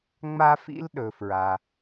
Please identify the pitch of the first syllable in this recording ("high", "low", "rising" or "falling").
high